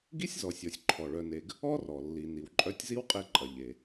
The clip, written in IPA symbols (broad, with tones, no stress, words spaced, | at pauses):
ɡi˥sʲzɔ˨sʲɔ˨sʲ ǃʰɔ˩ɭœ˨ne˨ɡ | ɔ˥rɔ˩ lːi˨ni˨wǃʼœ˦tʲ zi˥wqʼe˦ǃʼɐ˨ ʎe˨